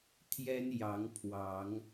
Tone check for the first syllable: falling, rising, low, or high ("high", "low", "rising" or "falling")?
high